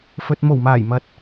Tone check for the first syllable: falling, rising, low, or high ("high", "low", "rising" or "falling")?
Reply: low